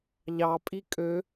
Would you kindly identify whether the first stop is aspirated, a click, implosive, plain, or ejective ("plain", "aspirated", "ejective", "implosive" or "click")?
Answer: ejective